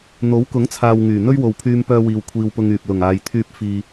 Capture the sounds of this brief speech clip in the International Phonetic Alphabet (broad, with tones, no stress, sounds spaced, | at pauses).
n̪ o˨˥ w k ʊ˨˥ ŋ t͡sʰ aː˨ w ŋ yː˨˩ n̪ ɵ˥ ɥ w o˨ w pʰ yː˧ m p œː˧ w iː˨ w kʷʰ iː˧ w p ʊ˧ ŋ yː˨ p̚ l ʊ˨˩ ŋ aː˨ j t̪ʰ yː˧ p̚ f iː˧